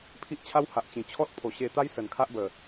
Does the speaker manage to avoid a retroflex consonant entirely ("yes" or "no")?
yes